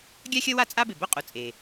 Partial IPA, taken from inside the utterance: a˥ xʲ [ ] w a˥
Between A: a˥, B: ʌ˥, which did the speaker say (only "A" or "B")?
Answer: B